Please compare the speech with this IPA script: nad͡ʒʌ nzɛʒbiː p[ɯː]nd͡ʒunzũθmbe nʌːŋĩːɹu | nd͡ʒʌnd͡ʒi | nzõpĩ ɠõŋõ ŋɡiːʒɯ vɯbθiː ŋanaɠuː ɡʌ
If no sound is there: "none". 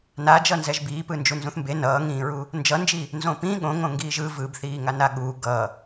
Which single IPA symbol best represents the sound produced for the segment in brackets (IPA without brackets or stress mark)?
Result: ɯ